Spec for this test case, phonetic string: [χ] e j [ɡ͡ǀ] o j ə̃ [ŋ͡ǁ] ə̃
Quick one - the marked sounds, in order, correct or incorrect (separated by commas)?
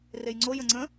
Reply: incorrect, incorrect, incorrect